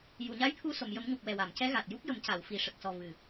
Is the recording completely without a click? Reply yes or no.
yes